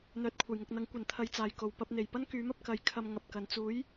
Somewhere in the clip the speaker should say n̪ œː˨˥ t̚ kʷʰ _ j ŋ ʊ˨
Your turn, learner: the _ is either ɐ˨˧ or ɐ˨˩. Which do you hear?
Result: ɐ˨˩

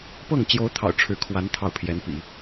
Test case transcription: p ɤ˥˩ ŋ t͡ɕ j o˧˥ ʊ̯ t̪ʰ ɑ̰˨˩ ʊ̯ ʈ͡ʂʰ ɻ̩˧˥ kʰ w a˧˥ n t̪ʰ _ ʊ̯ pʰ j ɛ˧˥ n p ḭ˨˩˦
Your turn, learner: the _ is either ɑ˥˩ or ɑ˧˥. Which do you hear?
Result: ɑ˥˩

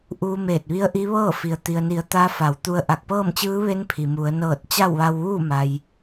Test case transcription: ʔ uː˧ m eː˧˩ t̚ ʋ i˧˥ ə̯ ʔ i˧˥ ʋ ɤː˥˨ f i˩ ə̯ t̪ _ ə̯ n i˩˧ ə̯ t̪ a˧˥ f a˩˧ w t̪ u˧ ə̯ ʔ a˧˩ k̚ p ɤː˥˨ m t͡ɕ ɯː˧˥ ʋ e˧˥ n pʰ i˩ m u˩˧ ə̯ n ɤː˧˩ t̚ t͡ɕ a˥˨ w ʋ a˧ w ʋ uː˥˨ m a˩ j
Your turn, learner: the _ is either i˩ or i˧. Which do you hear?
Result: i˩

